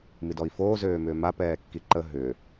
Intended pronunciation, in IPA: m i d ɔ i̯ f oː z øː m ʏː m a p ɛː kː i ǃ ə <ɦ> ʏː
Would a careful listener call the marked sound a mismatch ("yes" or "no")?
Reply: no